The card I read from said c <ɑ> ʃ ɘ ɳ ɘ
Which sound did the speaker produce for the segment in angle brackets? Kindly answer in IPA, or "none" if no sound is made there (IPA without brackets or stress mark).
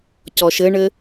ɔ